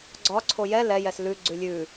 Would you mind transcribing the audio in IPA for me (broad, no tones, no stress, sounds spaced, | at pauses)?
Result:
ɡ͡ǀ ɒ ǀʰ o j ɛ l ɛ j ɛ s l ʉ ɡ͡ǀ ʉ lʲ ʉ